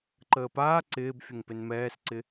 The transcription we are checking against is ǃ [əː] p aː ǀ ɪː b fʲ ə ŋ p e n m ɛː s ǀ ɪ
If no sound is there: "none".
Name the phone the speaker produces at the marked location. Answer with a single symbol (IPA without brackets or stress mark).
əː